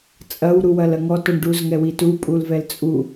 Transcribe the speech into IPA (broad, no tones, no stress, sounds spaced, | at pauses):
t͡sʼ ɐ w ɾ u w ɐ l ɐ ŋ ɔ t ɔ ɳ ɖ u z ŋ ɛ w i t u pʼ u l v ɛ l t͡sʼ u